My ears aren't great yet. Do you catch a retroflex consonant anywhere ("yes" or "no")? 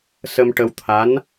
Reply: yes